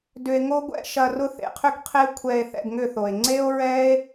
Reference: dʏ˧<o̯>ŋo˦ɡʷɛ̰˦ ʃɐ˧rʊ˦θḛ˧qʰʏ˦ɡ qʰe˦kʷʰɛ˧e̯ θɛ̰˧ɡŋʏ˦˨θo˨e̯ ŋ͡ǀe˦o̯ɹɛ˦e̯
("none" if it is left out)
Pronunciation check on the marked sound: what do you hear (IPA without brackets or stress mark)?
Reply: e̯